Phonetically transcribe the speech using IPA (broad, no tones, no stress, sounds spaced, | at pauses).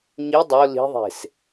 ɲ i dˤ o l i̤ ðˤ e̤ s